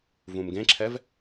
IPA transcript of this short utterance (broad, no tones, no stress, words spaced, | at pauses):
vũmɡẽǁʰɛv